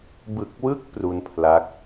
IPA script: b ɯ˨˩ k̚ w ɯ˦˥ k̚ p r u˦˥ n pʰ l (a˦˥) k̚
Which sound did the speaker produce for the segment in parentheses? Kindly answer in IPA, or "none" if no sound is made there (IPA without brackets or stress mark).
a˦˥